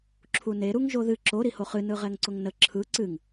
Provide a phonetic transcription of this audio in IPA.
ǁʰ u n e ɾ u ŋ ʒ o ð ɨ ǁ o ɾ i h o χ ɨ n ɯ ʁ ɛ ŋ ǀ ʊ ŋ n ə ǁʰ ɯ ǀ ɨ ŋ

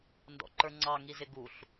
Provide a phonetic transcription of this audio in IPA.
n d ɔ̰ ǃ ə˞ ŋ͡ǀ ɑ ŋ i z ɪ ɡ u ɬ

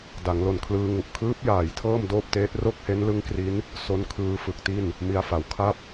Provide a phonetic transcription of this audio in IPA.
d a˩˦ ŋ l o˨˩ n kʰ l ɯː˧ ŋ u˨˩ ʔ kʰ ɯː˦˥ p̚ j aː˨˩ j tʰ ɤː˥˩ m d oː˥˩ p̚ t eː˦˥ t̚ r o˥˩ k̚ h e˦˥ n l ɯ˦˥ ŋ k r i˦˥ n | s o˦˥ n kʰ ɯː˧ f ɯ˨˩ k̚ t i˥˩ n | m i˧ a̯ f a˩˦ w kʰ a˥˩ p̚

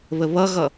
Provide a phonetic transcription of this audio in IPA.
β ə β ʌ ɣ ʌ

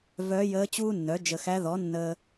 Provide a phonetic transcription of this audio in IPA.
v œ˧˥ j əː˧˥ t͡ɕ uː˥ nː œ˩˥ d͡ʒ ə˨ x æ˧˥ ð ɔ˩˥ nː əː˨

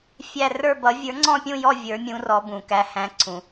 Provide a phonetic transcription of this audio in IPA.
fʲ æ˦˨ r ə˞˦˨ b ʌ˨˦ vʲ ə˞˨˦ ŋ͡ǀ ɔ̃˦˨ pʲ ũ˦˨ j ɔ˦˨ vʲ ə˞˨˦ mʲ ũ˨˦ r ɔ˨˦ b ũ˩ k æ˨˦ h æ̃˨˦ ǀʰ ũ˩

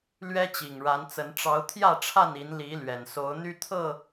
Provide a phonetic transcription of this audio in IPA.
l ɥ ɛ˦ t͡ɕ i˨˩ ŋ ɻ a˨˦ n t͡s ə˨˦ n ʈ͡ʂ ɑ˨˦ ʊ̯ t̪ʰ j ä˥˨ ʈ͡ʂʰ a˥˨ n i˨˦ n l i˨˦ l ɥ ɛ˨˩ n s o˨˦ ʊ̯ n̪ y˦ t̪ʰ ɤ˥˨

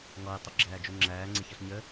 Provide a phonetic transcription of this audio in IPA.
ŋ ɔ j tˤ ʊ ɡ͡ǁ æː d͡ʒ u ŋ͡ǁ æː ŋ͡ǀ ɪ ç ʌ ɬ ɲ ə

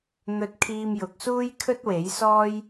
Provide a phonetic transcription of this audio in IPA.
n̪ ɵ˧ t̚ kʰ iː˧ m j ʊ˨ k̚ s uː˥ j kʰ ɵ˥ t̚ w e˨˥ j s ɔː˥ j

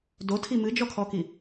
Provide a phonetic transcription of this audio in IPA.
d o tʰ i m ɨ d͡ʒ ɔ kʰ ɔ k i

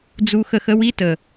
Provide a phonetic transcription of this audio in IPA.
d͡z u˦ x ə˦ x ə˦ w i˦ t ə˨

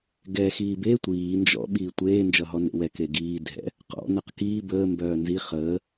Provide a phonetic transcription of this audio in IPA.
ɡ ɛ x iː b e tʷ iː n d͡ʒ ɔ̰ ɓ iː tʷ eː n d͡ʒ ʌ ɦ ɔ n ḛ w ɛ k e ɡ iː dʱ ɛ̰ | q ɔ̰ n ʌ q k iː b əː m b œː n z i χ əː

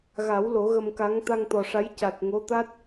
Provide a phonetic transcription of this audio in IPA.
ɣ a˨˩˦ w l o˨˩˦ ɣ ə˧ m k a˧˥ ŋ t̪ a˧ ŋ t̪ ɔ˨˩ ʂ a˧˥ j c a˨˩ t̚ ŋ o˧˥ t̪ a˦˥ t̚

